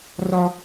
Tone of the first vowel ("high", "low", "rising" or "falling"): high